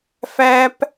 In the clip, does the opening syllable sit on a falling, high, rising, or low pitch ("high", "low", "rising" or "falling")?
high